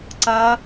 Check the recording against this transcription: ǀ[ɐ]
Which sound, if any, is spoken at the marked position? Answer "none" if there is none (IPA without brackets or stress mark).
ɐ